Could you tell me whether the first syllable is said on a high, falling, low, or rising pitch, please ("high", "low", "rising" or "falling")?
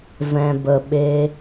low